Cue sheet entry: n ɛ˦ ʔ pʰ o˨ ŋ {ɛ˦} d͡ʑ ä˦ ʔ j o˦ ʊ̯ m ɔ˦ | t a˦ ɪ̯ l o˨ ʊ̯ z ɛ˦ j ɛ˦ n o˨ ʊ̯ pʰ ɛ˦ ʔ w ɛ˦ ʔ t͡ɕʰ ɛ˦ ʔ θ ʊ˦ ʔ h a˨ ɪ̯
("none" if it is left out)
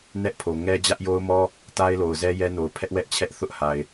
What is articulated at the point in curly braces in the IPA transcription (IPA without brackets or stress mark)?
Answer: ɛ˦